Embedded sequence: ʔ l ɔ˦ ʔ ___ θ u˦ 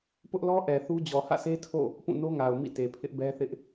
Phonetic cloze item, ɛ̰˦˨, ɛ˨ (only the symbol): ɛ˨